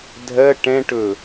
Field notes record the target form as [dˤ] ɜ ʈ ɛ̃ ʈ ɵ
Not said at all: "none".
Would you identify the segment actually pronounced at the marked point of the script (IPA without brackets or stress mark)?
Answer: dʱ